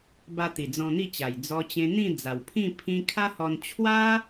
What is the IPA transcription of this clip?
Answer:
b a˧ t̪ i˨˩ d͡z ɔ̃˧ n̪ i˥˧ t͡ɕ a˨˩ j d͡z ɔ˧ t͡ɕ ẽ˧ n̪ ĩ˥˧ d͡z a˨˩ w pʰ ĩ˥˧ pʰ ĩ˧ kʰ a˦ h ɔ˧ n t͡ɕʰ w a˦

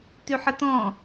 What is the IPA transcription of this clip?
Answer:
t y ħ ə t ɔ̃

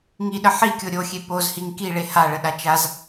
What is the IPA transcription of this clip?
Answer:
ŋ i ɗ ə ħ i kʲ o ɾʲ o xʲ e p o z h i ŋ k i ɭ e h a ɭ ə ɗ a t͡ʃ a z

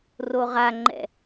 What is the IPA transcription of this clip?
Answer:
r o ʁ a ŋ͡ǃ ɛ̰

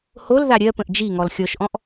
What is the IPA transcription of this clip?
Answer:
h o l ð a ɾʲ ɜ p ə̃ ʔ d͡ʒ i ŋ ɔ l xʲ ɔ ʃ ʔ ɔ̃ ʔ

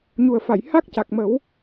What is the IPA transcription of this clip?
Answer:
ɲ u˨˩ ə̯ f a˨˩˨ j h a˦˥ k̚ c a˨˩ k̚ m ə˨˩˦ w

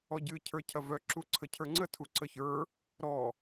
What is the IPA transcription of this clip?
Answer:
ɔ ɟ ɨ cʰ ə˞ cʰ ɐ v œ ǁ u ǀʰ ə cʰ ə˞ ŋ͡ǀ ə tʰ u ǀ ə ç ə˞ | ɾ ɔ

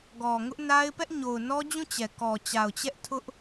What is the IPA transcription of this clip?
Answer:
ɡ ɔ˨ ŋ ʊ˦ ʔ n a˦ ɪ̯ p ɛ˦ ʔ ɲ o˨ ʊ̯ n ɔ˦ d͡ʑ ũ˦˨ t͡ɕ ɛ˨ k ɔ˨ t͡ɕ a˨ ʊ̯ t͡ɕ ɛ˦ ʔ tʰ ʊ˦ ʔ

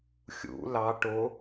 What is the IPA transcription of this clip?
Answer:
xʲ ṵ l ɑ ʈ o

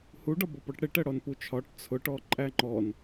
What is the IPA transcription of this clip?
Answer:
h u ɖ ɒ b ɔ p ɔ ʈ ɽ ɪ ʈ ɜ ɽ ɔ n p u t͡ʃʰ ɒ ʈ t͡sʰ ʊ ʈ ɔ ǃʼ æ ŋ͡ǃ ɔ n

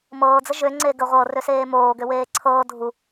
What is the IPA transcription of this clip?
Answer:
m ɤː d͡z ə ʒ ø ŋ͡ǀ e ɡ ə ʁʷ ɤ r ø s eː m oː ɡ ø w eː ǀʰ ɤː dʱ u

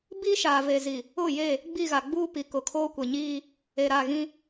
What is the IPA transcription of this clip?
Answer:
b i˦ ʃ aː˨ v e˨ z i˨ | ʊ˦˨ j e˦˨ | ɡ͡b i˦˨ ɣ a˨ ɡ͡b uː˦ p i˨ k ʊ˨ kʰ oː˦ kʷ e˨ ɲ iː˦ | e˨ ɾ a˦˨ ɣ ĩ˦

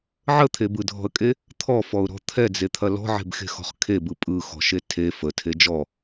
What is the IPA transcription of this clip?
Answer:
ʕ ə t̪ʰ e b ɯ dʱ ɔ̤ ə̯ kʼ e | t̪ʰ ɔ f ɔ ʊ̯ ɾ ɔ̤ t̪ʰ ɛ d͡z e t̪ʰ ɐ l ɔ̤ ʕ e̤ b x e̤ x ɔ̤ χ kʰ e b ɯ pʼ ɯ x ɔ̤ ʃ e tʰ e f ə tʰ e d͡ʒ ɔ

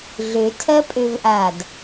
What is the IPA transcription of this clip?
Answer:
ɮ ø tʰ ɜ pʼ ø v ʔ aː d

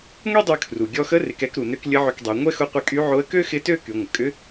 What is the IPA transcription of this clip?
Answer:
ŋʷ i˥ dˤ y˧ kʰ r u˩ ɡʲ ɔ˧ x ə˧˥ r ɪ˩˧ k ɛ˧ k ɾ u˩ n ø˧ k lʲ ə˧˥ ʕ ʏ˧ k dˤ ø˩˧ ŋʷ ɛ˥ x ʊ˧˥ qʷ ɪ˧˥ kʼ y˧˥ ʕ o˧˥ ə̯ k ø˥ x ɪ˧˥ t ø˥ k y˩˧ ŋʷ ə˩ kʼ ʏ˧˥

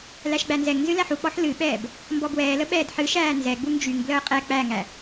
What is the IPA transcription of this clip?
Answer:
l æ ʃ ɡ͡b æ n z ɛ ŋ n z ɨ l æ ħ u k͡p ɔ ħ l ɨ ɓ ɛː b | m b ɔ b w ɛː l ə ɓ ɛː d ħ ɨ ʃ æː n z ɛ ɡ͡b u ŋ d͡ʒ y ŋ b l əː qʼ ɛ k͡p æ ŋ æ

